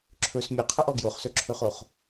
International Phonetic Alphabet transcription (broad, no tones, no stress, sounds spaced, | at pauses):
ǁʰ ɵ s mʲ ɵ qʰ ə ʔ ɔ ɡ j o χ s ɵ ǁʰ ɵ χ o χ